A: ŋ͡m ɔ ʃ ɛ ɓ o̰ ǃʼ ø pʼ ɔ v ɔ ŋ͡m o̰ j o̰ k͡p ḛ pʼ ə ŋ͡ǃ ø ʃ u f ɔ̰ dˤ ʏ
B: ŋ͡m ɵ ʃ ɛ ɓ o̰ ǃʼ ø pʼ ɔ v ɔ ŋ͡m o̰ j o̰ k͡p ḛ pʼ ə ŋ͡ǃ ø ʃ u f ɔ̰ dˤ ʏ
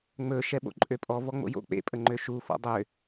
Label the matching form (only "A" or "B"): B